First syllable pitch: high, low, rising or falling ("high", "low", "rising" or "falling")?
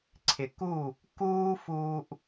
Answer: low